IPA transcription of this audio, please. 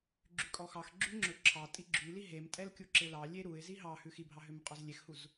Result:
ɡ͡ǁ y kʼ ɔ x ɑ x ɡ͡ǁ y ŋ͡ǁ ɵ ǁʰ ɑ tʼ i ɡ͡ǁ y l i ɦ e m tʼ ɛ l kʲ u ǁ e l ɑ lʲ e ɾ u ɪ̯ z i ɦ ɑ h ʉ x i bʱ ɑ ɦ ø m qʼ ɔ z lʲ e x h u z

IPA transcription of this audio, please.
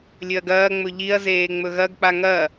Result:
lʲ ɵ ɐ̯ ɡ ɐː ŋ͡m ɵ ʎ i ɐ̯ z eː ŋ͡m ɵ ɣ ɐ ɡ k͡p a ŋ ɐ

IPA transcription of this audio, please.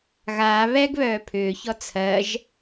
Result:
ɣ aː β ɛ ɡ β œː pʰ ʏː ç ɔ t͡sʰ ɜ ʒ

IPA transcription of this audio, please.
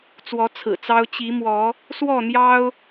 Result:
t͡s w ɔ˨˦ t͡sʰ ɹ̩˨˩ t͡s ɑ˦ ʊ̯ t͡ɕ i˨˦ m w ɔ˨˦ | s w ɔ˥˨ n̪ j ɑ˦ ʊ̯

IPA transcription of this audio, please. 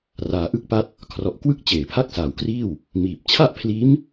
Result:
r aː˧ ʔ ɯ˥˩ k̚ p a˥˩ t̚ | kʰ r ɔ˨˩ ʔ k w ɯ˥˩ k̚ t͡ɕ eː˨˩ pʰ a˥˩ k̚ s aː˨˩ w k r iː˥˩ w | m iː˨˩ p̚ t͡ɕʰ a˥˩ ʔ pʰ l iː˦˥ m

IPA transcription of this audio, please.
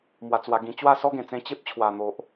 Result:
m w a˧ t͡s w a˧ ɡ ĩ˧ t͡ɕ w a˥˧ s ɔ˦ ɡ ẽ˨˩ t͡s ẽ˧ t͡ɕ e˦ p̚ t͡ɕʰ w a˨˩ n̪ o˨ ʔ

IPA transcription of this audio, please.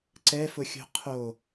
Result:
ǀ ɛ f ʊ xʲ o̤ qʰ o

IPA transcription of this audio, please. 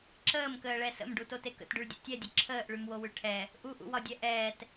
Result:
ǁ əː m k əː ɭ ɛ s ə̰ m ɖ u t o t e k ə̰ t ɖ y ɭ dʲ o̰ tʲ ɛ dʲ ə ǁʰ əː ʔ ɭ y m w o w ʉ ʈʰ ɛ | ʔ u ʔ ṵ w ɒ dʲ ɛ ʔ ɛː t

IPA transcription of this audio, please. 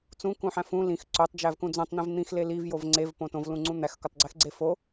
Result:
t͡s ũ k ũ ħ æ̃ f ũ l ĩ x ǀ o tˤ d͡ʒ æ v k ũ d͡z õ tˤ n̪ ẽ v n̪ ĩ x l e l i v j o v ŋ͡ǀ e v p õ t õ v l ũ ŋ͡ǀ ũ n̪ æ x k o tˤ ɡ͡ǀ e x ɡ͡ǀ e f o

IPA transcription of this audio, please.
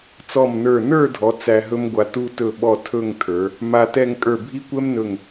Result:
t͡s ɔ˧˩ m n ə˞˧˩ n ə˞˥˧ dʱ ɔ˩˧ t͡s æ˧ ɦ ɵ˥ m ɡʷ a˧ t u˥ t ɵ˥˧ ɓ ɔ˥˧ tʰ ɵ˥˧ ŋ tʰ ə˞˩˧ | m a˧ t ɛ˥˧ ŋ kʼ ə˞˧˩ bʱ i˥ kʷ ɛ˥ m n ɵ˧˩ ŋ

